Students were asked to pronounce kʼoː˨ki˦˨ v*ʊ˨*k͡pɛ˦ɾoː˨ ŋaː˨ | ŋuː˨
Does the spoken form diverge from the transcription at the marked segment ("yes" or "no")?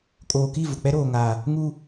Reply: no